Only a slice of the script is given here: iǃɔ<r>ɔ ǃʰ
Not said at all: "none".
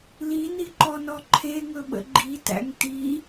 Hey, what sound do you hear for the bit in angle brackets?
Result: n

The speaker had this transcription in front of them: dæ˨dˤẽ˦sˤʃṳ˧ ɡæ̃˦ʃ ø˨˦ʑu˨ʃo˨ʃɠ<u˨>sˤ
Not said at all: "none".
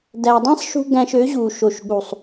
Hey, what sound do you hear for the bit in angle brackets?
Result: u˨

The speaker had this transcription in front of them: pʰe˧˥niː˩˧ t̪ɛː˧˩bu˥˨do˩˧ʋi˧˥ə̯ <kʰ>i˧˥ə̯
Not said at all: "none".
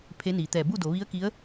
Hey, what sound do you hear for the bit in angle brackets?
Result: k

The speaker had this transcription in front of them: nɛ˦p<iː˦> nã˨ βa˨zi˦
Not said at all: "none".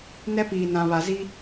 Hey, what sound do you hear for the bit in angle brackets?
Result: iː˨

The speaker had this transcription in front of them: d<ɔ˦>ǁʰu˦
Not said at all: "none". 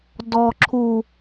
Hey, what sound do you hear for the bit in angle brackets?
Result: ɔ˦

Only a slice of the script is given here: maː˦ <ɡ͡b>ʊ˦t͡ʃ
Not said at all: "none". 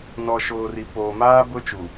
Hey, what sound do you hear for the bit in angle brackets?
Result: b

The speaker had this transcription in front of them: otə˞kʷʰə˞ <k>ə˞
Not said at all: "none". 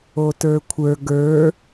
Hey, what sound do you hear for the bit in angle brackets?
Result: ɡ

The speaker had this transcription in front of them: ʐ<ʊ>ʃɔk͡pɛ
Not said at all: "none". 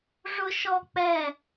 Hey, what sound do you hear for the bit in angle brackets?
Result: ʊ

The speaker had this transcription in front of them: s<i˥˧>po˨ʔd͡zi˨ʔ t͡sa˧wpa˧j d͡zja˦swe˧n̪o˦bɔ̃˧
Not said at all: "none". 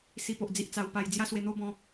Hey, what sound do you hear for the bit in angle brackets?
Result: i˧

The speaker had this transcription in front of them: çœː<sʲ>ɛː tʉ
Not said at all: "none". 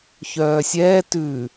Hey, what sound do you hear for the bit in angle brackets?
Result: sʲ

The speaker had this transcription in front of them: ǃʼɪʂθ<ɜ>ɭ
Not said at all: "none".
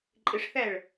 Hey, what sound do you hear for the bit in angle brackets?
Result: æ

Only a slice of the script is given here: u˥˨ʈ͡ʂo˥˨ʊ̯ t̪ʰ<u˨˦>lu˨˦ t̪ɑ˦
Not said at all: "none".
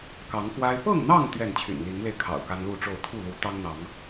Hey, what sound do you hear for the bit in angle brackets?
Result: u˥˨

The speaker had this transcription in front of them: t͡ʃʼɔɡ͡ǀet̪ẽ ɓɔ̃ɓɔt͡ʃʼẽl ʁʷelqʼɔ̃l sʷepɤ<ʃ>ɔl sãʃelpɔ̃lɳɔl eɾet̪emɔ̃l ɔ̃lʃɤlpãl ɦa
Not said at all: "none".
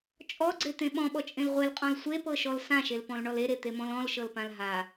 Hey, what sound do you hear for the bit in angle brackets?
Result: ʃ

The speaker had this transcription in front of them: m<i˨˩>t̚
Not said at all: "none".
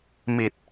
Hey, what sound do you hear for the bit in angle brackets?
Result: i˨˩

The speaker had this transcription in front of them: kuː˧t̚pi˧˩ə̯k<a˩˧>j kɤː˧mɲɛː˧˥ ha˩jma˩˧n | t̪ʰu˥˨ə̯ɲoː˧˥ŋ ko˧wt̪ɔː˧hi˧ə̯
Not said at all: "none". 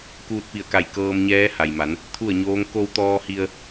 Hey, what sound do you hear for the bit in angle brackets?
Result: a˧˩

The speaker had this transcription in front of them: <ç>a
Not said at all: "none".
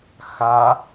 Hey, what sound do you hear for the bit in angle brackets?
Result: x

